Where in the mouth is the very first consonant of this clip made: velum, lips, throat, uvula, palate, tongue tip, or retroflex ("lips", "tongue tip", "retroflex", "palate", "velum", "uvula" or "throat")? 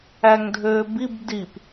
velum